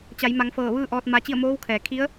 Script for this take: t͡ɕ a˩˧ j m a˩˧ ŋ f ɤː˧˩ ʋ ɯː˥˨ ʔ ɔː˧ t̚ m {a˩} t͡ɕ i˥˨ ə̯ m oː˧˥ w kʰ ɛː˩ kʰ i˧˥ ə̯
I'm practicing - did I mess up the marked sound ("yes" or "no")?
yes